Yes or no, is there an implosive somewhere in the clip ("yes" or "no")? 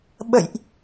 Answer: yes